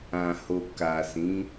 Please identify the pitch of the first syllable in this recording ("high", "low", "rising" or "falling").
low